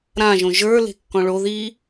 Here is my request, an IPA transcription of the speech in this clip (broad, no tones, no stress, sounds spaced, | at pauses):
ɾ ã ʒ õ ʒ ə˞ l e̤ kː ɔ̃ ɭ o ð i